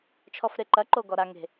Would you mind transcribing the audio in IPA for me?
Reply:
t͡ʃʰ ɔ f ɾ e ǃ ɐ ǃ o ɡ ɔ ɾ a ŋ e̤

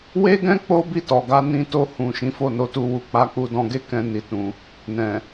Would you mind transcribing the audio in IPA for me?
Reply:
w e˦ ɡ ɛ̃˦ k͡p o˦ b i˦˨ t ɔ˨ ɡ a˨˦ n ĩ˦ t o˦˨ h ũ˨ ʃ ĩ˨˦ f o˦˨ n o˨˦ t u˦˨ w u˧ k͡p a˧ k͡p u˧ d ɔ̃˧ ɡ e˦ k ɛ̃˧ n i˧ t ũ˧ | n ɛ̃˨

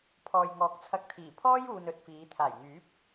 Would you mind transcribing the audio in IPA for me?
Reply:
pʰ ɔː˨ j ŋ ɔː˨ k̚ t͡sʰ ɐ˧ k̚ t̪ʰ iː˨˩ pʰ ɔː˥ j uː˨ n ɵ˧ t̚ f iː˨˧ t̪ʰ aː˨˩ j ŋ yː˨˥ p̚

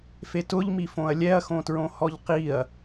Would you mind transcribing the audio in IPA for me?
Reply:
f e t ʊ ʎ m i f õ ɐ̯ lʲ ɛ ɐ̯ x õ t ɹ õ h ɔ ʎ q i ɐ̯

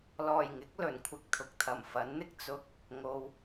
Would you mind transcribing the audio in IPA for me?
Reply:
l ɔː˨˩ j ŋ ɪ˨˥ k̚ l ɵ˨˩ n kʷʰ ɪ˧ k̚ t̪ʰ ʊ˨ k̚ t̪ʰ ɐ˨˩ m f ɐ˨˥ n n̪ ɪ˥ k̚ t͡s ʊ˧ k̚ | ŋ o˨ w

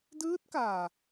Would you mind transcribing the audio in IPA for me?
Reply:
d ɯː˦˥ t̚ k aː˨˩

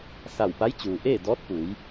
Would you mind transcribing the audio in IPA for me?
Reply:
s a˧˩ w p a˧˥ j t͡ɕ uː˩ ʔ eː˥˨ d ɔː˧˥ t̚ p u˩˧ j

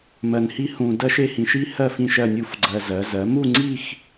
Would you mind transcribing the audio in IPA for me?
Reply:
m ɜ˧ n h i˥ h ũ˧ d ɜ˥ ʃ e˥˧ h ĩ˧ ʃ i˥ h ɜ˥˧ f ĩ˥˧ ʃ ɜ˥˧ nʲ u˥˧ f ɡ͡ǀ ɜ˧ z ɜ˩˧ z ɜ˩˧ m u˥˧ ŋ͡ǀ i˥˧ x

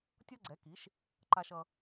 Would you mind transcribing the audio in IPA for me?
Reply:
tʲ ʌ˥ ɡ͡ǀ ɛ˩˥ k i˩˥ ʃ | ǃ a˧ ʃ ʌ˧

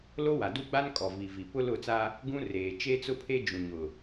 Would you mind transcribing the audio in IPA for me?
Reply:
l o˦ w a˨ d u˦ ɡ͡b a˦ n kʼ ɔ˨ v i˨ v i˨ p ʊ˦ l ʊ˦˨ t͡s a˦ | ɡ ũ˦ r eː˨ t͡ʃ e˦ t͡s ʊ˦ pʰ e˦ d͡ʒ ũ˨ ɲ ʊ˨

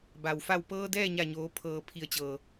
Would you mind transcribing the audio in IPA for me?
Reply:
b a˩ w f a˧˩ w p ɤː˧ d ɛː˥˨ ɲ a˧˩ ɲ oː˩˧ pʰ ɤː˩ pʰ i˩ ə̯ t͡ɕ ɤː˩

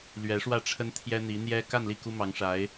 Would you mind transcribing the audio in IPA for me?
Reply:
l ɥ ɛ˧˥ ʂ w ä˥˩ ʈ͡ʂʰ ə˥ n t̪ʰ j ɛ˥ n̪ i˧˥ n̪ j ɛ˥ k a˥˧ n l i˥˩ k u˥ m ɑ˧˥ ŋ ʂ a˧˥ ɪ̯

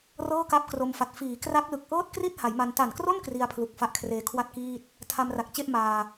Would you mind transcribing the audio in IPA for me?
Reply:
r ɤː˥˩ k a˦˥ p̚ k r o˧ m f a˨˩ t̚ f iː˩˦ k r a˦˥ k̚ l ɯ˨˩ k̚ ʔ ɤː˥˩ t̚ k r i˥˩ t̚ h a˩˦ j m a˧ n t a˨˩ n k r o˥˩ n k r i˧ a̯ pʰ l u˨˩ k̚ f a˥˩ ʔ kʰ r eː˧ kʰ w a˥˩ t̚ k iː˥˩ t̚ | tʰ a˧ m r a˨˩ k̚ t͡ɕ e˥˩ ʔ m aː˧

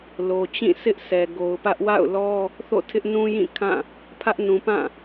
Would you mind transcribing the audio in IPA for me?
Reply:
l o˨ t͡ɕ ĩ˦˨ s ɪ˦ ʔ s ɛ˨ ɡ o˨ ʊ̯ p ä˦ ʔ w a̰˦˨ ʊ̯ l ɔ˦ | θ o̰˦˨ tʰ ɪ˦ ʔ n ũ˦ j ĩ˦˨ kʰ ã˦˨ | pʰ ä˦ ʔ n ũ˨ p ã˦˨

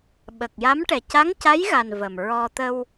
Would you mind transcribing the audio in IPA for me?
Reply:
ɓ ə˨˩ k̚ j a˧˥ m ʈ ɛ˨˩ c a˧˥ ŋ c a˧˥ j ɣ a˨˩ n v ə˨˩ m ɹ ɔ˧ t̪ ə˧ w

